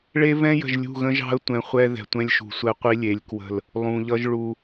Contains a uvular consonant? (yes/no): yes